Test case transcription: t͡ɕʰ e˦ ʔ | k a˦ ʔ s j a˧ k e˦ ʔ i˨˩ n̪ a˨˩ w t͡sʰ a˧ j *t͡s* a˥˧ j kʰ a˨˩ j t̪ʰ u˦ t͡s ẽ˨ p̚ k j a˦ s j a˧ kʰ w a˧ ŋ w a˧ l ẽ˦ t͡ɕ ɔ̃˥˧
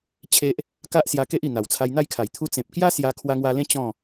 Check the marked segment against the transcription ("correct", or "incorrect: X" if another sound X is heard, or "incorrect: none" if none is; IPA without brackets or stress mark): incorrect: n̪